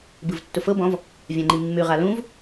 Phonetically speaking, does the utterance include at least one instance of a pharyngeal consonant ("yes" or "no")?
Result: no